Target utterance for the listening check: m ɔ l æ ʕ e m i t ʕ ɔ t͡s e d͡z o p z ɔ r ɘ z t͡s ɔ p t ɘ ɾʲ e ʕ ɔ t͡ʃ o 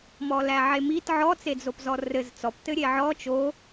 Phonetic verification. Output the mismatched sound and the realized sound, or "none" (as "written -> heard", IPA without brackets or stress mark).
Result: none